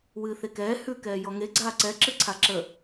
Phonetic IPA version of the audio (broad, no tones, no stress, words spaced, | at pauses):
wɨːθekɛː hʉ kɛːjɔŋe ɡ͡ǀaːǀɛ ǁɨǀʰaǁə